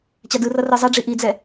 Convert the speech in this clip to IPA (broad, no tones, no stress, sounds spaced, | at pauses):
t͡ɕ a d ɯ r ʌ r ɯ zˤ ɛ ɖ͡ʐ i ʔ i d͡z ɛ